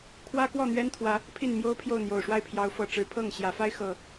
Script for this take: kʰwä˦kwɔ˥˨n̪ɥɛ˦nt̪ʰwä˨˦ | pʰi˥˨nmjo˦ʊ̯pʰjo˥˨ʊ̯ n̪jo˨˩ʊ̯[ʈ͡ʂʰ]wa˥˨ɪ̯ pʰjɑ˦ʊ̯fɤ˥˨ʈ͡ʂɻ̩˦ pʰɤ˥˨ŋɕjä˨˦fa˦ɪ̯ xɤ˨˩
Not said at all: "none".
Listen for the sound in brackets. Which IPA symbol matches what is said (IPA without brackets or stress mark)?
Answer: ʂ